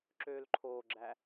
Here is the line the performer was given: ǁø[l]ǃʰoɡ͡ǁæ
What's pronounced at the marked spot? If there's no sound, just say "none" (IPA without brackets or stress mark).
l